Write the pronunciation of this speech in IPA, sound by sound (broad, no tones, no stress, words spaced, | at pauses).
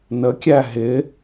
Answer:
nəkʲæ ɦɪ